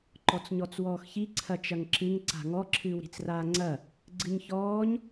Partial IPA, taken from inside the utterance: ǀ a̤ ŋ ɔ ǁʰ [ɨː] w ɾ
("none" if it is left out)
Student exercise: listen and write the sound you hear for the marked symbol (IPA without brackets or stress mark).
ɨː